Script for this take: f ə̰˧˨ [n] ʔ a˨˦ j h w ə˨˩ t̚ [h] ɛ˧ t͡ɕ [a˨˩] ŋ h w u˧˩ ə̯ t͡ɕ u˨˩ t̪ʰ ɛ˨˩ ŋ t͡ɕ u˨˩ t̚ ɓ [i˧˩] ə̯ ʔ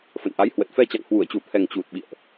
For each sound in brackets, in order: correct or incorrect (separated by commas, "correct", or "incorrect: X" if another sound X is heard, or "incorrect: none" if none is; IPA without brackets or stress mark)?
correct, incorrect: f, incorrect: a̰˧˨, incorrect: ḭ˧˨